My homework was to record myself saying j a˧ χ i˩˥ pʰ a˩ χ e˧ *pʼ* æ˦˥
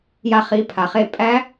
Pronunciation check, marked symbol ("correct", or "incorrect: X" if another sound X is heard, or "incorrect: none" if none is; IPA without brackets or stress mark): correct